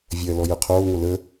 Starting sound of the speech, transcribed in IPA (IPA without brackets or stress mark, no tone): vʲ